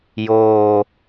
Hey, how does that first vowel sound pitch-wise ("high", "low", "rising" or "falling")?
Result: low